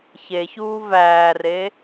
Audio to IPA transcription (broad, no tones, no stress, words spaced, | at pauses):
çeçuː væːre